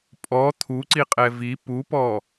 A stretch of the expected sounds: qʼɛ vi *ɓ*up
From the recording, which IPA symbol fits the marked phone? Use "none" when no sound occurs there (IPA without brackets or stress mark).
p